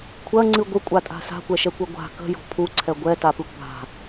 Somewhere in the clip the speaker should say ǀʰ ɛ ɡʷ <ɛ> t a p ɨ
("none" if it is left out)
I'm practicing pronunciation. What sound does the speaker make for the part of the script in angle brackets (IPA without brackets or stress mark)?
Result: ɛ